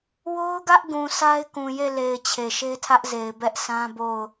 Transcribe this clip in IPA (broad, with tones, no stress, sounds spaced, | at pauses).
w o˦ ʊ̯ ɡ ä˦ ʔ ɡ ũ˨ sʰ a˦ ɪ̯ k ũ˨ j e˦˨ l e˨ ɪ̯ t͡ɕʰ e˨ ʃ e˦ tʰ ä˦ ʔ z e˨ ɪ̯ b ɛ˦ ʔ sʰ ã˦ b o˦˨ ʊ̯